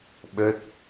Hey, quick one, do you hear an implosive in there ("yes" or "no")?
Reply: yes